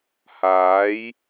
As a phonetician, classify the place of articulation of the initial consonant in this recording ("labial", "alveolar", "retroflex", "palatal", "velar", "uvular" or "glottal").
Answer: glottal